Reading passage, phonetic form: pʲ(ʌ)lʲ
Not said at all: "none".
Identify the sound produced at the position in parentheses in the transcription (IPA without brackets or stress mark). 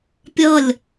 ʌ